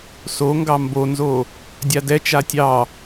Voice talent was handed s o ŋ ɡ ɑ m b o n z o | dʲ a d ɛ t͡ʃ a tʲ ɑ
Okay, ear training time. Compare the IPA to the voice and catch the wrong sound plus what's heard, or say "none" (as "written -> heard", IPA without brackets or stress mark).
none